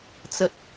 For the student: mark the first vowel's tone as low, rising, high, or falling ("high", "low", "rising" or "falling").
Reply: high